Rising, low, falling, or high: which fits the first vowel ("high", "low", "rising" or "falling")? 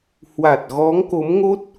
low